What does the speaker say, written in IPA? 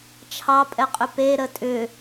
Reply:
t͡ʃʰ ɑ pʼ ɛ qʼ ʏ p e ɾ ə tʼ ʏ

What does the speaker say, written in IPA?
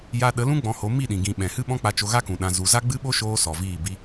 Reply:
j a˧ ɗ ə˨˦ l ũ˦ ɡ͡b ɔ̃˧ h o˨˦ m i˦˨ ɗ ĩ˨ ɡ ĩ˨ ɓ ɛ̃˨ h ɨ˦ ɓ ɔ̃˦ k͡p a˧ t͡ʃ o˧ ɣ a˦ k ũ˨ ɗ ã˨ z u˨ z a˦ ɡ͡b ɨ˦ ɓ o˦ ʃ oː˧ s ɔ˨ v iː˦˨ b i˦

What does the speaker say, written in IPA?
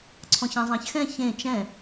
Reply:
ǀʰ ɔ̃ ç ã zˤ ã ç x ɛ̃ ç ẽ t͡ʃ ɛ̃

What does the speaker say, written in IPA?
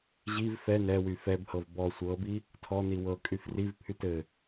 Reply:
ʑ i v f ɛ n ɛ w y f ɛ b h ɤ v b ɔ sʷ ɤ b i | tʰ ɔ n i w ɤ kʼ y f r i v pʰ y t ɘ

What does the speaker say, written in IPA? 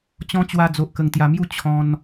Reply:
t͡ɕ ɔ̃˦ t͡ɕ w a˧ d͡z o˨ ʔ k ə˨˩ ŋ t̪ j a˨˩ m j u˦ t͡ɕʰ ɔ̃˧ n

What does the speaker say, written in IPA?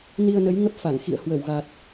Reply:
n i˧ ə̯ n ə˨˦ j ŋ ə˦˥ p̚ f a˧˩ ŋ x ḭ˧˨ ə̯ h w ə˧˩ w ɣ a˨˩ t̚

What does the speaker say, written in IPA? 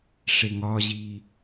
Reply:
ʂ e ŋ ɒ ʑ i

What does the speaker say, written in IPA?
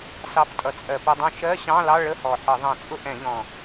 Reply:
s ɑ˨˥ p tʼ ʌ˨˩ t͡sʼ ɜ˧˩˧ p ʊ˧˥˧ dˤ ɛ̃˥˧ ʃ ɜ˧˥˧ ɕ ɑ̃˧˥˧ l ɑ˧˥˧ ɭ ə˧˥˧ h ɔ˨˩ ħ ə˧˩˧ ðˤ ɛ̃˧˩˧ t͡sʼ ʊ˥˧ ʔ ɛ̃˧˩˧ ʎ ɔ̃˨˩

